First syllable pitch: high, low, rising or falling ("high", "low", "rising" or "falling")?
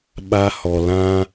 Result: high